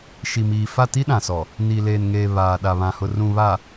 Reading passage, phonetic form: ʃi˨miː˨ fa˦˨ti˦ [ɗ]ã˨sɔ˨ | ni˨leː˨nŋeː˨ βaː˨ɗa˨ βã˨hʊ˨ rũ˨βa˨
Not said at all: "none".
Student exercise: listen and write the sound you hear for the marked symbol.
ɗ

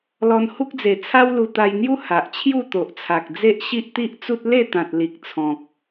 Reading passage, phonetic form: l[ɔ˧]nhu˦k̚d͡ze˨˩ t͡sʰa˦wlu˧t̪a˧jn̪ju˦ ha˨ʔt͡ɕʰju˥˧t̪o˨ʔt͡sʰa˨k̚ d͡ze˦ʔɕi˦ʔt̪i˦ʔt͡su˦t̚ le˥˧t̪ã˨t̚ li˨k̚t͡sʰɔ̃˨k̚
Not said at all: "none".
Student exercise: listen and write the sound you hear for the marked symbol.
ɔ˧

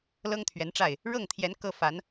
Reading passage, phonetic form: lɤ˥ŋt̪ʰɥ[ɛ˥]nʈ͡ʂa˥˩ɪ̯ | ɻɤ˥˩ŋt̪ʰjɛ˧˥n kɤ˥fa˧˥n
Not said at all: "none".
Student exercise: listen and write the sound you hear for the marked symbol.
ɛ˧˥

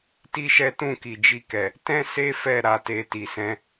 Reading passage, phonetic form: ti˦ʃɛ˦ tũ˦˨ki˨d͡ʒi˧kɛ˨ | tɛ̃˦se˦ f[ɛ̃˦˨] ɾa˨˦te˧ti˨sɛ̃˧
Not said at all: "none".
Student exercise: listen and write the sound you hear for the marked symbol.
ɛ˦˨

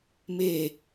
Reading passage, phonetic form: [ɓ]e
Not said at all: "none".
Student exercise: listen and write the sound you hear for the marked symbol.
m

